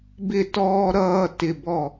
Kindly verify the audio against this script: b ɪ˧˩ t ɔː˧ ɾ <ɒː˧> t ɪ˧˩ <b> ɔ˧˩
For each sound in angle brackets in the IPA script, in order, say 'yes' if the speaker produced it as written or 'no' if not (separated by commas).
no, yes